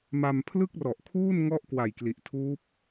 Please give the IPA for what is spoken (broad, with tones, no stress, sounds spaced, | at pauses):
m a˧ m pʰ l ɯ˥˩ k̚ r ɔ˨˩ ʔ kʰ uː˥˩ n ŋ ɔ˥˩ ʔ k w a˨˩ j k l i˨˩ ʔ tʰ uː˦˥ p̚